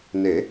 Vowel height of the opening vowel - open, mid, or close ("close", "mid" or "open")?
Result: mid